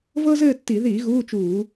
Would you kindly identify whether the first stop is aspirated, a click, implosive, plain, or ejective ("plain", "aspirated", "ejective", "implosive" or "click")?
plain